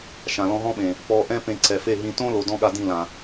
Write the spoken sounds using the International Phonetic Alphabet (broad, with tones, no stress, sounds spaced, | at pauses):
ʃ ã˨ l ɔ̃˧ ɦ ɔ̃˦ ɓ ẽ˨ | p ɔː˧ ʔ ɛ̃˦ p ẽ˧ ǀ ɛ˨ f e˦˨ ɦ ĩ˧ t õː˦ l o˨ d ɔ̃˧ ɠ a˧ d ĩ˦˨ l ã˨